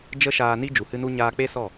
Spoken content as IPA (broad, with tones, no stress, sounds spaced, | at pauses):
d͡ʒ ə˦ ʃ aː˧ n i˦ d͡ʒ u˨ h ɨ˧ n u˧ ɲ aː˧ k͡p e˦ s ɔ˦˨